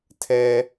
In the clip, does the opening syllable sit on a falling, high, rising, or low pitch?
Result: high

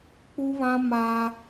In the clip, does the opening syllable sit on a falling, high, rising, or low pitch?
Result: high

